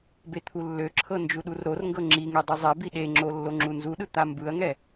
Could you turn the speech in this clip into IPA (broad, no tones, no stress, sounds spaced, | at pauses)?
b e t̪ʰ u lː ø ǁʰ ɤ n d͡ʒ u ɗ u r ɾ o r ŋ ɡ ɤ ŋ͡ǁ i ŋ e dˤ ɯ zˤ ɛ b i ɗ e ŋ͡ǁ o lː o ŋ͡ǁ u n z u ɗ ɯ t̪ a m b ɯ ɐ̯ ŋ ɛ